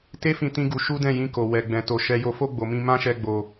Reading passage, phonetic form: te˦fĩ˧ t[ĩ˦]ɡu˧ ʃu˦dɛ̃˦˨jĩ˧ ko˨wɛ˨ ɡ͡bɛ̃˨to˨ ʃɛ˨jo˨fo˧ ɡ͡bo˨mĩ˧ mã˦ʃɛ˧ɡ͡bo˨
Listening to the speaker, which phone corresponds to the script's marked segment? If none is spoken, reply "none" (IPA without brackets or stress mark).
ĩ˦